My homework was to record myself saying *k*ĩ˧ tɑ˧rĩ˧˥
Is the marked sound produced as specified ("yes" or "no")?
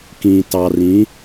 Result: yes